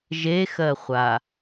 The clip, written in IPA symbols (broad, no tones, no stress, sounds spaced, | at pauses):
ʒ e x ɜ χʷ a